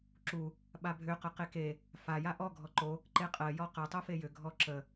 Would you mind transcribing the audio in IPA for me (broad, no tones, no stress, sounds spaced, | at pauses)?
ǁ u | ɓ a bʱ ʏ q ə q e k e | f a j a ʔ ɔ ɡʱ ɔ ǃ o | ǃ e qʼ ɜ j ɔ q ɜ tˤ o f e j ʏ ɡʱ ɔ ǁ ə